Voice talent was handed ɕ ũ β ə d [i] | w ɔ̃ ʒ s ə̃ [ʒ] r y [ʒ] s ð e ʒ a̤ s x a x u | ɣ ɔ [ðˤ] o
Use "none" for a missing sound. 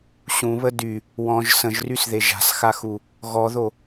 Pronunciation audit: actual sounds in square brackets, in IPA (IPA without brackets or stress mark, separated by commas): y, ʒ, none, ð